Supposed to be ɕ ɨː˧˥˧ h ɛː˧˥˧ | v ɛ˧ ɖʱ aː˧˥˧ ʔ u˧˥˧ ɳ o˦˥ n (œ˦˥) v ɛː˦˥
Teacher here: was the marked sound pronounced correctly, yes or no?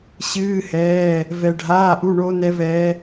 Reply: no